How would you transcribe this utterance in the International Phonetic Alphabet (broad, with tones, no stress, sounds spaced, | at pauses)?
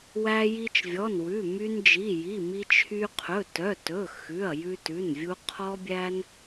w æ˧ j i˧ t͡ʃ vʲ ɔ˩˧˩ n w ʉ˩˧˩ m y˧ n d͡ʒ i˩˧˩ j i˩˧˩ m i˧ t͡ʃʰ y˧ qʰ ɵ˩˧˩ t œ˩˧˩ t ɵ˩˧˩ x ʉ˩˧˩ ɐ̯ j ʉ˧ t ʉ˩˧˩ n vʲ u˧ qʰ ɔ˧ bʲ æ˧ n